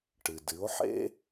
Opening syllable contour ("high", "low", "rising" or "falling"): low